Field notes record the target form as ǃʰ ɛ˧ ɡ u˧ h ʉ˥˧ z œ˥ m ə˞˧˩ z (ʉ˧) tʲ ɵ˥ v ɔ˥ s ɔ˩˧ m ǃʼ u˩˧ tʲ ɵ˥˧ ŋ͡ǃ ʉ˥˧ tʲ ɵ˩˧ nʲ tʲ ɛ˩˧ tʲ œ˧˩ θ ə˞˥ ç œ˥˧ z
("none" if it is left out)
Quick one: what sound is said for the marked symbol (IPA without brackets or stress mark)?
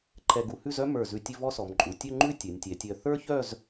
ʉ˧